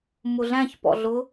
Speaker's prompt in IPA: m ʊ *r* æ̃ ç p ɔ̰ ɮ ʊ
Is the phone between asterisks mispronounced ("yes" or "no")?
yes